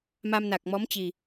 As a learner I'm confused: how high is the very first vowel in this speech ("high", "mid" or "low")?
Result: low